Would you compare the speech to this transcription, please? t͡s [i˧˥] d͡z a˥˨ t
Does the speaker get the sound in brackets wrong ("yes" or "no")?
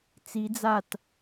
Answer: no